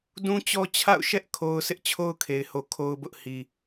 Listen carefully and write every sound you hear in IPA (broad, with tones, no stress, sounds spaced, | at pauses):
d ũ˦ t͡ɕ ɔ˦ t͡ɕʰ a̰˦˨ ʊ̯ ʃ ɛ˦ ʔ kʰ o˦ ʊ̯ sʰ ɪ˦ ʔ t͡ɕʰ o˦ ʊ̯ kʰ e˨ ɪ̯ h o˨ kʰ o˦ ʊ̯ b ʊ˦ ʔ h i˨